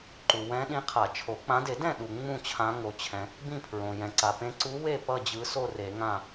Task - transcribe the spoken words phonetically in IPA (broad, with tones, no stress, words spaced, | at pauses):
ǃu˩wɛ̃˨˦ɗĩ˨˦ qʰa˨˩˦t͡ʃʰo˨˩˦ k͡pã˨˦de˨˩˦dɛ̃˥˨ ɗu˩ ŋ͡mũ˥˨t͡ɕʰã˨˦ ŋo˩t͡ɕʰɛ̃˩ | bĩ˥˨pʰɹõ˩ jɛ̃˩ǀa˩pẽ˨˦ ǀu˨˦ we˥˨ pʌ˥˨d͡ʑɯ˨˦so˥˨ re˨˩˦ŋã˥˨